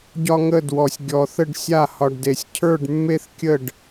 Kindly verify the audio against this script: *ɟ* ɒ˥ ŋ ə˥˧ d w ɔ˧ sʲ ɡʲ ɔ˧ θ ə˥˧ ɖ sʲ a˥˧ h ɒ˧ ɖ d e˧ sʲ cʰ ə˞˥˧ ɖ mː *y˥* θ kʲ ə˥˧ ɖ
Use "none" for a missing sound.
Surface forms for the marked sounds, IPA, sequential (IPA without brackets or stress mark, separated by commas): ɟ, e˥